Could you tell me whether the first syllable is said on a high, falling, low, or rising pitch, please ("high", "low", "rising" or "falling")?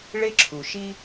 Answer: high